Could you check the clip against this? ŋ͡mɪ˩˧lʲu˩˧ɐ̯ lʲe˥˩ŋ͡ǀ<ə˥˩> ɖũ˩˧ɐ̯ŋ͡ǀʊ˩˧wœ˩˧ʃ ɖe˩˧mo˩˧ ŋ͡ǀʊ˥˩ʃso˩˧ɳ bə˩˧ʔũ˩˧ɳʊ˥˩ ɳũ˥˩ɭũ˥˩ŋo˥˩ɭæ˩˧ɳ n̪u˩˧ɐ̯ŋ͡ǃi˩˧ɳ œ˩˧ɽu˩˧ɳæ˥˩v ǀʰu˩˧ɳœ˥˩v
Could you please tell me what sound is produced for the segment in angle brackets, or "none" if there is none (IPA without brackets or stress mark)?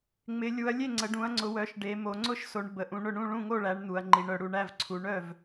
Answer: ə˩˧